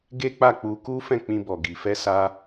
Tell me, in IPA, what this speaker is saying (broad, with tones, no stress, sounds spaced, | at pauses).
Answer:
ɡ e˦ k͡p a˦˨ k͡p u˧ k u˦ f ɛ̃˦˨ k͡p ĩ˧ b ɔ˨ ɡ i˨ f ɛ˧ s a˧